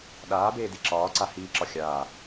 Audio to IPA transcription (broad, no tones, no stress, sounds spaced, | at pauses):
ɗ aː b eː d i ǁ ɒː ǀ a h iː ǁ ɒ xʲ aː